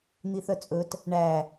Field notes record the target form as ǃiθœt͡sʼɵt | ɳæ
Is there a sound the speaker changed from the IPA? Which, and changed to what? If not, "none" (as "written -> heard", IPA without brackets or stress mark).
ǃ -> n̪